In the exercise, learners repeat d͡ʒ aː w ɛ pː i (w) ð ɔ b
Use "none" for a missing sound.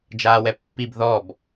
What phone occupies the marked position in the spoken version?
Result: b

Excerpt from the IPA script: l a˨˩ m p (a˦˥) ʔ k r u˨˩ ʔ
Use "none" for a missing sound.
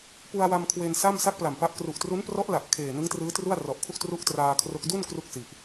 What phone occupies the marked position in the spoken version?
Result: a˦˥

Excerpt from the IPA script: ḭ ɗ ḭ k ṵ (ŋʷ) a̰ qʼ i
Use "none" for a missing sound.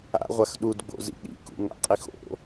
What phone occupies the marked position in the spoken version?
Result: ŋ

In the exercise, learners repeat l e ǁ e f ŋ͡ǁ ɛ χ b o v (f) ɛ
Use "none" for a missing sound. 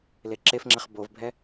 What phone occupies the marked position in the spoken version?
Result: bʱ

